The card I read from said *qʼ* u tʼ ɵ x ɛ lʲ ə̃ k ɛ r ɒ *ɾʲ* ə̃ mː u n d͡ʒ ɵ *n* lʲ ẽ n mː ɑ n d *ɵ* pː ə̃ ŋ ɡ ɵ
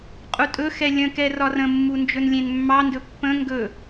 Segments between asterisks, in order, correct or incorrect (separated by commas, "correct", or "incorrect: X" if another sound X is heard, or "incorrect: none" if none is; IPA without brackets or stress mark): correct, incorrect: r, correct, correct